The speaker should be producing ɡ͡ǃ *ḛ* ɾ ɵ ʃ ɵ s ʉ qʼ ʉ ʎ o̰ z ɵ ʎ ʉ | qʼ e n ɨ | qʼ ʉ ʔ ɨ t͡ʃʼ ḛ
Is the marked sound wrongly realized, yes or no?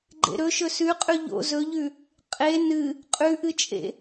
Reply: no